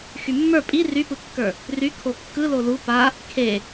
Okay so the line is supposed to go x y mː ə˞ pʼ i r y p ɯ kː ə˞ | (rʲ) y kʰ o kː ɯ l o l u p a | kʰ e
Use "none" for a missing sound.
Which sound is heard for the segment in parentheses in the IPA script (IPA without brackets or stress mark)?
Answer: r